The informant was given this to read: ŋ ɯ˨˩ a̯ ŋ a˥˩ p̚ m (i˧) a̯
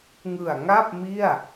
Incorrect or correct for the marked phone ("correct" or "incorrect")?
incorrect